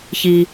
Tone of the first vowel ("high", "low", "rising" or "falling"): low